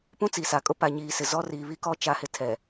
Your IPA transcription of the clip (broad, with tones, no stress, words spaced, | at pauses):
pũ˦t͡si˨sa˨kʼʊ˦ pa˨ɲiː˨sɪ˨ zɔ˦ ri˨ βi˦kɔ˦ t͡ʃa˨˦hɪ˨tʰɛ˨